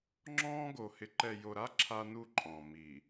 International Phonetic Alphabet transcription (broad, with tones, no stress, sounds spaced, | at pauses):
ŋ͡ǁ ɔ̃ː˦ ɡ o˨ h ɪ˨ ǃ ɛ˨ j o˨ ɾ a˦ ǁʰ a˦ n u˦ ǃʼ ɔ̃˨ m i˨